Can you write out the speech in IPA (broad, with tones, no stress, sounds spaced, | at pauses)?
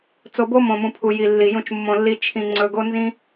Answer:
t͡s o˨ b o˧ m õ˨ m ũ˨ pʰ u˨ j i˨ lː i˨ j ũ˧ t͡ʃ mː õ˧ lː i˦ t͡ʃʰ ĩ˧ ŋ͡ǀ ɵ˧ ɡ o˦ n z ĩ˦